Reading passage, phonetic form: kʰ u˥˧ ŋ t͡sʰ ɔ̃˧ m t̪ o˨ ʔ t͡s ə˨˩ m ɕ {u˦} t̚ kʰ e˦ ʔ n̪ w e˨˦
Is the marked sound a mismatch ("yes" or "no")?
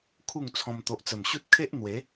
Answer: no